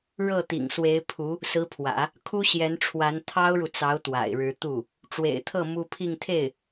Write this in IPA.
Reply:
ɻɤ˥˩ t̪ḭ˨˩ŋswe˧˥ɪ̯pʰu˧˥ | sɹ̩˧˥pʰwä̰˨˩˦ | kʰu˥ɕjɛ˧˥nʈ͡ʂʰwa˧˥n t̪ʰɑ˥ʊ̯ɻu˨t͡sɑ˧˥ʊ̯ t̪wa̰˨˩ɪ̯ɻɻ̩˧˥ t̪u˥˩ | ʈ͡ʂwḛ˨˩ɪ̯t̪ʰɤ˥˩ mu˥ pʰi˥˧ŋt̪ʰe˥˩ɪ̯

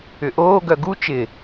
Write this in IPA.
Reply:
ʏʔoː ɡœɡu t͡ʃɪ

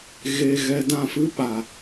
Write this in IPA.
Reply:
ɣe˧ ɣɛ˧ dã˦˨fɨ˦ ɓa˨

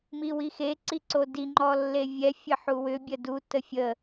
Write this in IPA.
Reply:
miwixe ǀiǀodi ŋ͡ǃɔlːevʲɛ fʲəħuwʏ bʲədu təfʲə

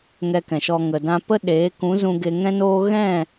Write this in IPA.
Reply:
ŋɛ˧kɛ̃˨ʃɔ˧ ŋə˨ dã˧pə˦ɗeː˨˦ kũ˨˦zũ˧ ɡe˧ŋɛ̃˦noː˦ ɣɛ̃˦˨

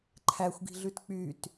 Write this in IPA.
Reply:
ǃʰæxʷɡi̤ɮʉt k͡pyt

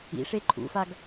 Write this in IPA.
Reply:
ḭʂe ǃʰṵfaɡ

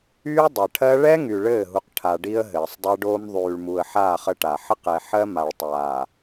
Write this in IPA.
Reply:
yː˦dˤɘ˨ʈʰɜ˦ ɭɛ˦ŋy˨ ɭɘː˦˨ɦu˨qʈʰa˨ ɖi˦ə̯ɦɘː˨sˤdˤɜ˦ɖoː˦m ðˤyː˨ɭmu˨ə̯ħaː˦˨χ ə˦ʈa˨ ħə˦qɛ˨ħɜ˦ ma˨ɭtˤaː˨

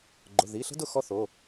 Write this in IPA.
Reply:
ɡ͡ǃʊ˩˧˩ði˩˧˩ɬə̤˥dʊ˥˩ xɔ˥θo˩˧˩

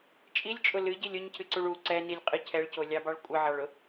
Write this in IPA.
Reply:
t͡ʃʼilʲt͡ʃʼʊ lɨɟilʲ ʊɲcʰɨǀuɭ u ǀɛnilʲqʼɨ cʰɛɭcolʲɑbɑɭ kʷʼɨʕɑɭʊ

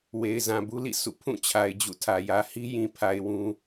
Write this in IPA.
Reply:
we˨ɪ̯zã˨bu˦lḭ˦˨ sṵ˦˨ pʰũ˦˨ t͡ɕʰa˨ɪ̯d͡ʑṵ˦˨tʰä˨ jä˨hi˦jĩ˨pʰa˨ɪ̯ wũ˦

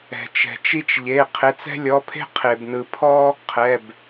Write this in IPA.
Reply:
ɛ̤˩t͡ʃɛ̤˩t͡ʃi˦t͡ʃ ʎe˩˧˩ qʰe˩˧˩t͡sɛ̤˦lʲɔ˩˧˩pʰe̤˦ qʰe˩bnɯ˩pʰɔ˦ | qʰɛ˩˧˩b

